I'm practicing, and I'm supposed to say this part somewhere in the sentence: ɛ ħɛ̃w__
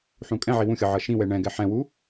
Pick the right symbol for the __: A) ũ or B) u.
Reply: B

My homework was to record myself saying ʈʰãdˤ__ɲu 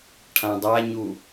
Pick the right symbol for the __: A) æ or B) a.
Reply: B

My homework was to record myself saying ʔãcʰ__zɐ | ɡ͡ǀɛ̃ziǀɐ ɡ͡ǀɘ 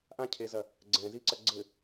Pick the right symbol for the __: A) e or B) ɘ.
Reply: A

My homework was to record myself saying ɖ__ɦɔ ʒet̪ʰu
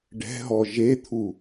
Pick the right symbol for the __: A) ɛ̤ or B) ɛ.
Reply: A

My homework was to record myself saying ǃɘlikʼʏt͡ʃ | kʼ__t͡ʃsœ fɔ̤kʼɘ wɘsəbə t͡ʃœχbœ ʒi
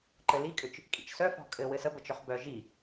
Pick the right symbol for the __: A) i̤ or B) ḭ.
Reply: B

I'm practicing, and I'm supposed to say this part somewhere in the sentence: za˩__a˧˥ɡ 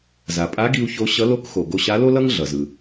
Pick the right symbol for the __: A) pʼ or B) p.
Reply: A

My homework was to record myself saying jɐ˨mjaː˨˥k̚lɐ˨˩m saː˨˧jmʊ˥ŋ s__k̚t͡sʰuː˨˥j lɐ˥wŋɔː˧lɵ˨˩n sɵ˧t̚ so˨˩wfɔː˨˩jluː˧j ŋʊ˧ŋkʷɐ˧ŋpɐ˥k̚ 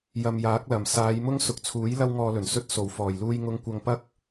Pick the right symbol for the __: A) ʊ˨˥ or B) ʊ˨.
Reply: B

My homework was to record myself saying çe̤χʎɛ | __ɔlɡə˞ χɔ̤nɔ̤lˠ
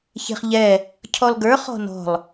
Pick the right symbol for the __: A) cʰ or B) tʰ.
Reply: A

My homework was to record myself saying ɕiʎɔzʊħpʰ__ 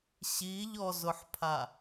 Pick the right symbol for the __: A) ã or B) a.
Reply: B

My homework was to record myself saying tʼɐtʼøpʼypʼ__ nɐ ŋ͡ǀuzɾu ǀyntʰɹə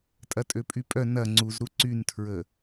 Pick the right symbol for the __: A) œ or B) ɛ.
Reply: A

